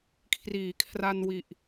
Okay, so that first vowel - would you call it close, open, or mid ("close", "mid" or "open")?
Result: close